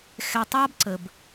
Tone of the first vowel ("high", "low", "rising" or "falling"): low